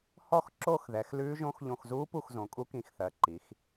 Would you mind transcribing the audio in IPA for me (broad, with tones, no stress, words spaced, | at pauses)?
hɔ˦˨xǁo˦˨xðɛ˩˧x lʉː˧˥ʒõ˧˥x ʎõ˦˨x zuː˧˥ pu˦˨xzõ˩˧ kʼu˧˥kĩ˨˩xθɜ˩˧ ǃi˩˧x